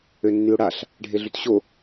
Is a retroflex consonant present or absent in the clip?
present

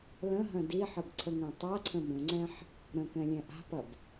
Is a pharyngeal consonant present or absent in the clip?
present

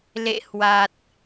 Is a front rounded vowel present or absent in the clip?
absent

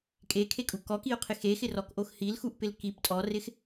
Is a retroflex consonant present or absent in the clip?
absent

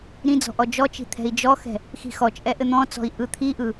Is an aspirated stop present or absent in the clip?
present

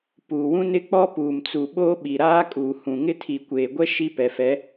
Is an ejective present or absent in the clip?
present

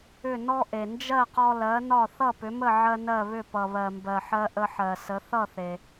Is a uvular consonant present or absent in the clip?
present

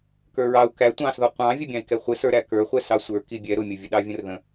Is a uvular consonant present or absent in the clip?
present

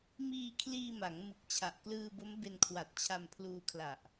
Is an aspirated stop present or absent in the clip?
present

